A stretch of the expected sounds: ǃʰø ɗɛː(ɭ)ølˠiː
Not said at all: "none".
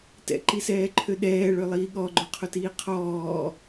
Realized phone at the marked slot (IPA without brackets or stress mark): ɭ